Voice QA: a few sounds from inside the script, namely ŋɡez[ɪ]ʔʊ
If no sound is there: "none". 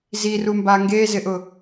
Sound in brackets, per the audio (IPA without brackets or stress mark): ɪ